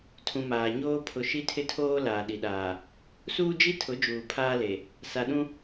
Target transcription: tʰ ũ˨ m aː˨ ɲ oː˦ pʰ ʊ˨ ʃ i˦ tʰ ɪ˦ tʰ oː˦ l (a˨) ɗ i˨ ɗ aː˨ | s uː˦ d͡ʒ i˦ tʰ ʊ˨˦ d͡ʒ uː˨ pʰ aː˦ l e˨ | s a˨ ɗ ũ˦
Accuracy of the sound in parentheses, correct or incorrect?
incorrect